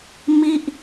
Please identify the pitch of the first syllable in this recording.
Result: falling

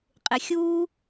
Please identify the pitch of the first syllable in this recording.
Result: low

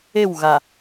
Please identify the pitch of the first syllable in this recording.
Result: falling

